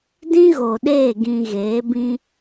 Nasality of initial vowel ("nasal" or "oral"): nasal